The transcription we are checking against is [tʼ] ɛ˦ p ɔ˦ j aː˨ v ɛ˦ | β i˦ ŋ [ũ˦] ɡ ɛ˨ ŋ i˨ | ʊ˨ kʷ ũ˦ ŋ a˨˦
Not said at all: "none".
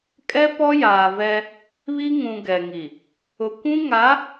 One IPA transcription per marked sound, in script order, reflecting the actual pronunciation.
kʼ, ũ˨

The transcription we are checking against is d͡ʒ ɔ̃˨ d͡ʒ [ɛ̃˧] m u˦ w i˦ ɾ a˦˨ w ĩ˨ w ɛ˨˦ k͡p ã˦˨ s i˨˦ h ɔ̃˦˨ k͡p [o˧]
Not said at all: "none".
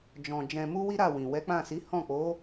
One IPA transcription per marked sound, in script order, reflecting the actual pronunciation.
ɛ̃˧, o˨˦

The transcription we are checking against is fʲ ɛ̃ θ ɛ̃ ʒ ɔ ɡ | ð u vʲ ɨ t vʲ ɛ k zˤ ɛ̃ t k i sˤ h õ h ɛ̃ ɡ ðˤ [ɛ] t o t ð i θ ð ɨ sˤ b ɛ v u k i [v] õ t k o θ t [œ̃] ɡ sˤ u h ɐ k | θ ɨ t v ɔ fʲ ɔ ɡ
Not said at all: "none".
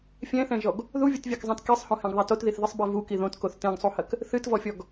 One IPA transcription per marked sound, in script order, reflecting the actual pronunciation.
ɛ, ð, ɛ̃

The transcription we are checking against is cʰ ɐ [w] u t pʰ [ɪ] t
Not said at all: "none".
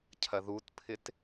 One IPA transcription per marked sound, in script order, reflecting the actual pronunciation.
ð, ɪ

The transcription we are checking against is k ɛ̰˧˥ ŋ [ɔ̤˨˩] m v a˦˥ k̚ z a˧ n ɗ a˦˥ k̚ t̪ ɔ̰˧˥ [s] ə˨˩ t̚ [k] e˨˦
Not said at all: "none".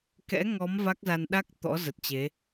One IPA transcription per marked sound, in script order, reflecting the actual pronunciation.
ɔ˨˦, z, t͡ɕ

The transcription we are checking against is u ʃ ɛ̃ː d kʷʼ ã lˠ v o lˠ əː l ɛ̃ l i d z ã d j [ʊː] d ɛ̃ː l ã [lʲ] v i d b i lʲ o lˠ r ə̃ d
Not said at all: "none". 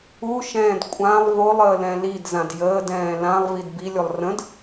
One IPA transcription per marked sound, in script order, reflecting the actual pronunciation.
əː, lˠ

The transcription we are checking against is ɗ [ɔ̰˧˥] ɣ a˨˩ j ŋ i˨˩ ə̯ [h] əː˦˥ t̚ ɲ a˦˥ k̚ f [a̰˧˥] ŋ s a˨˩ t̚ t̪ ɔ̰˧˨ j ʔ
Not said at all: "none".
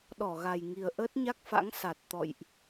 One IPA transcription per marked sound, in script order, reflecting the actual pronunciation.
ɔ˧˩, ʔ, a̰˧˥

